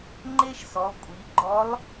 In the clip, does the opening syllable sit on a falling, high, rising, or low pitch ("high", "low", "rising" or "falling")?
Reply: high